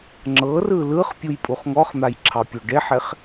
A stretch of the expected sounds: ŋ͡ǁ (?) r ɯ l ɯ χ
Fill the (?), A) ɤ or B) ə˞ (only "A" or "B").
A